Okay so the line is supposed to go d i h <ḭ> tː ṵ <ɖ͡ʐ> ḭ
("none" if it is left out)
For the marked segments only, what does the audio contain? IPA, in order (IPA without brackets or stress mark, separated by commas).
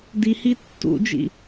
i, d͡ʒ